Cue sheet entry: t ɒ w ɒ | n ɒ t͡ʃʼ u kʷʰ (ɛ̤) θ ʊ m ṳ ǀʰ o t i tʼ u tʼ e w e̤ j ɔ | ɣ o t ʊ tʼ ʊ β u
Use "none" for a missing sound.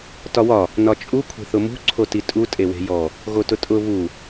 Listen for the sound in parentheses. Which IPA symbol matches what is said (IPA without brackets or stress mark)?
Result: e̤